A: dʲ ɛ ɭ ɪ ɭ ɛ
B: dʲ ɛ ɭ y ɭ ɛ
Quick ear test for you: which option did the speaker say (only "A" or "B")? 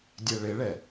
A